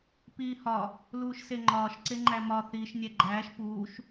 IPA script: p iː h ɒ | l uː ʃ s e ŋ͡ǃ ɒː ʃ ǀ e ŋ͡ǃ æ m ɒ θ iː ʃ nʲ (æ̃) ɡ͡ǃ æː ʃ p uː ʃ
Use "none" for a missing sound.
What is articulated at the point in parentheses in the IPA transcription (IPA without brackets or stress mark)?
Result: æ